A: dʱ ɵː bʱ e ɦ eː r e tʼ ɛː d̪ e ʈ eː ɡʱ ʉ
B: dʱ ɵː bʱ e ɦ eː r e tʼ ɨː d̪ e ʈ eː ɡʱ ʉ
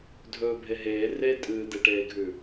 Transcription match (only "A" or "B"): B